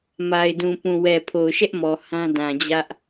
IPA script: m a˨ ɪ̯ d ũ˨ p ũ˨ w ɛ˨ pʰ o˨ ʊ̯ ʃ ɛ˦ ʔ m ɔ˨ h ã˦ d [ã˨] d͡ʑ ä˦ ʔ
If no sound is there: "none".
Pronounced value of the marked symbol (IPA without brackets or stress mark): ã˨